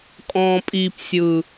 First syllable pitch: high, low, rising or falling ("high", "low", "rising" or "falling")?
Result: low